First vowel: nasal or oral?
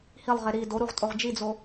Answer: oral